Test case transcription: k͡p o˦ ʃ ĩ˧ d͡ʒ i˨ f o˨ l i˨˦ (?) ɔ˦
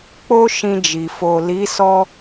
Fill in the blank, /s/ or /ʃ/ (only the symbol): s